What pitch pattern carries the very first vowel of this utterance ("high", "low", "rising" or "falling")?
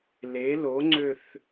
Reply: rising